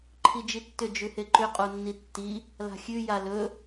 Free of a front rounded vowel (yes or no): no